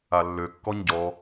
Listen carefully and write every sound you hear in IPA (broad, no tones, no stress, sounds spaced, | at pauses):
a lː ø kː ɔ ɲ ɟ ɔ